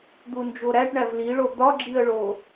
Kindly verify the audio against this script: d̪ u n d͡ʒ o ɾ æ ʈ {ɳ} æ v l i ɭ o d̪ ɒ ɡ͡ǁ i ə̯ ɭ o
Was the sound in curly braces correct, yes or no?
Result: yes